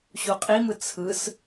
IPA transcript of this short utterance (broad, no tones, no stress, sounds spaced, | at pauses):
ɕ u qʼ i m ɯ t͡sʰ ɯ s